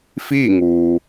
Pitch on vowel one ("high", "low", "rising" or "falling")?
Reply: falling